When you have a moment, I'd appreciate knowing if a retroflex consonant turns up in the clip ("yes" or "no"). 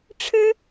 yes